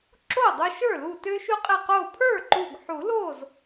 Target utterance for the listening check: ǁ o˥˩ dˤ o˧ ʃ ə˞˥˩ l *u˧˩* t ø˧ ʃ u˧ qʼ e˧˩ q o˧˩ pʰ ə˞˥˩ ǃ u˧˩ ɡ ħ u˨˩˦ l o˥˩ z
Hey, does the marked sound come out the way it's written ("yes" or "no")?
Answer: yes